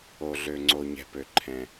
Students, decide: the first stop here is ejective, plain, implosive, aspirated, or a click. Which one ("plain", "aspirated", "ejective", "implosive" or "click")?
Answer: click